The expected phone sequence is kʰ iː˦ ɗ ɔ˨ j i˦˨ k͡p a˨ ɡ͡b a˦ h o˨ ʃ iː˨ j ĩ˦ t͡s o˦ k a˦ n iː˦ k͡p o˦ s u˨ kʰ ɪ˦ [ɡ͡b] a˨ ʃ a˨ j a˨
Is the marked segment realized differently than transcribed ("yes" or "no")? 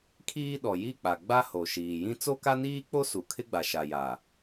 no